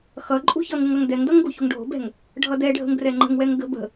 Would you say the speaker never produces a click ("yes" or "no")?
no